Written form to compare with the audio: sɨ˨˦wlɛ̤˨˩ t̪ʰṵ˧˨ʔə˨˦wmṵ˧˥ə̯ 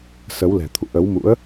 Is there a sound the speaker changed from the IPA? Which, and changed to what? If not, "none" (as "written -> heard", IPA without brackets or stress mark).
ɨ˨˦ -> ə˨˦